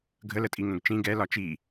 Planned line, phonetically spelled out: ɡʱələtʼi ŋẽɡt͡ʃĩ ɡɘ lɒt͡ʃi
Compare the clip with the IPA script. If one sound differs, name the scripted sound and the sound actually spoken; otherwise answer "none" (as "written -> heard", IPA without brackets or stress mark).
ɘ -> ɛ